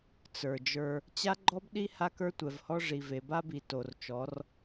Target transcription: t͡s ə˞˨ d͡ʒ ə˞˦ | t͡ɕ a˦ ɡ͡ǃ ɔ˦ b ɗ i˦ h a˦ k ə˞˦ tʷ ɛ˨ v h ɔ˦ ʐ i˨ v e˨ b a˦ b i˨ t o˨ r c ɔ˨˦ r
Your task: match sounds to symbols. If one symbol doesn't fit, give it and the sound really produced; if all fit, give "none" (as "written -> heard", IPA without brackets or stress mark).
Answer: c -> t͡ʃ